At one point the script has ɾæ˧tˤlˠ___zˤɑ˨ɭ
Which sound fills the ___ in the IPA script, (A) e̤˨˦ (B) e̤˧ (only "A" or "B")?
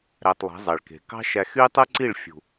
A